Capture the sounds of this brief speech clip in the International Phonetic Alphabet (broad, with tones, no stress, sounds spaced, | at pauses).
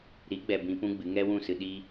ɾ i˨˦ ɡ͡b ɛ˨ b ĩ˧ p ũ˦ ɡ͡b ɨ˨˦ ŋ ɛ˦ w ũ˦˨ s ɨ˧ ɗ i˧